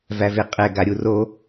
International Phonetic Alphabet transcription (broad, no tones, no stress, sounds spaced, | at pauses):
v æ v e qʼ ɛ ɡ a ɾʲ u r o